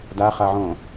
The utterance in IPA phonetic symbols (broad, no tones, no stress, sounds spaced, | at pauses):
d a χ a ʕ õ